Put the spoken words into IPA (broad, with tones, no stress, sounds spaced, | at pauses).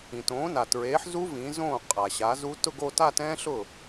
ĩ˩ t õː˩˥ n a˩ t ɹ eː˩˥ ħ z u˦˥ v ĩ˩˥ z õː˥˩ qʼ a˩ ɕ a˩˥ z u˦˥ t ʊ˥˧ ɡ o˥˧ t a˥˧ t ɛ̃ː˦˥ ɬ ʊ˥˩